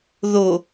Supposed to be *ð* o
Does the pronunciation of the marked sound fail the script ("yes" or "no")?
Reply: no